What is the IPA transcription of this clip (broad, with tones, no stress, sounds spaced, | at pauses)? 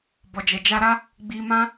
b ɔ˨ d͡ʒ ɛ˨ d͡ʒ a˧ ɾ a˦ | ɡ͡b i˧ m ã˦